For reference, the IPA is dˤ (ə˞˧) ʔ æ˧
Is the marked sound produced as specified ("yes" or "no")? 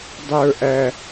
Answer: yes